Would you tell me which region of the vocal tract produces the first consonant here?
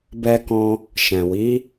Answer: lips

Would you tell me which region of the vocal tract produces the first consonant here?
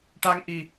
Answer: retroflex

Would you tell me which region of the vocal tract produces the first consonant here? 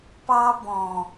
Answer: lips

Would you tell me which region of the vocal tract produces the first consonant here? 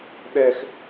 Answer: tongue tip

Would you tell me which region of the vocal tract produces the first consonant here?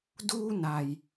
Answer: tongue tip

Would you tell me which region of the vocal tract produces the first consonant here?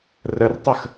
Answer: tongue tip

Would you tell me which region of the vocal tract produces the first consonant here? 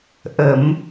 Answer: throat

